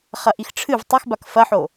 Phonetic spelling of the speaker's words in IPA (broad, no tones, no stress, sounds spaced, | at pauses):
χ ɐ ʔ i x ʈ͡ʂʰ ɨ v tˤ ɛ x b a k f ɐ ħ o